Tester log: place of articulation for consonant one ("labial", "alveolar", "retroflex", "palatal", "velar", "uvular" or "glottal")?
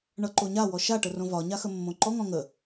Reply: retroflex